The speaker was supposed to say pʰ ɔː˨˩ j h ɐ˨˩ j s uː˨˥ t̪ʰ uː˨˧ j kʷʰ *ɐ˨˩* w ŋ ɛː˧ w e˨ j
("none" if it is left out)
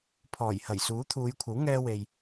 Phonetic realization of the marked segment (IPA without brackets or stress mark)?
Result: ɐ˨˥